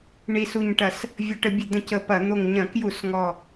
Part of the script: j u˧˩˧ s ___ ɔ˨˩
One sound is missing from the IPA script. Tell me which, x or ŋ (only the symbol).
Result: ŋ